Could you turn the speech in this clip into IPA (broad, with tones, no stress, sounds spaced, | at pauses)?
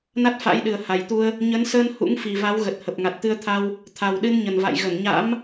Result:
n a˦˥ t̚ f a̰˧˥ j ɗ ɨ˨˩ ə̯ h a˨˩ j t̪ u˧ ə̯ | ɲ ə˨˦ n s əː˧ n h ṵ˧˥ ŋ f i˨˩ v a˨˦ w ɣ ə˨˩ t̚ h ə˨˩ p̚ ŋ a˨˩ t̚ t̪ ɨ˧ ə̯ t̪ʰ a˧ w | t̪ʰ a˨˩ w ɗ ɨ˧ n ɲ ə˨˩ n v a̰˧˨ j ɣ ə˧˩ n ɲ a̰˧˥ m